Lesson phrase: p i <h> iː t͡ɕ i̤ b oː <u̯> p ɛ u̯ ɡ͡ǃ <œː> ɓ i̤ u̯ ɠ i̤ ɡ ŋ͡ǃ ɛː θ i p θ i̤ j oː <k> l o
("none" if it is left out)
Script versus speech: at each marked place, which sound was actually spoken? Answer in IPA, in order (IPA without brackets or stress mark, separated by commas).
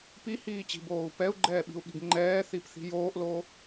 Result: h, u̯, ɛː, ʔ